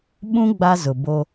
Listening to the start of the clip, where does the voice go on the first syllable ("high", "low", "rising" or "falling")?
high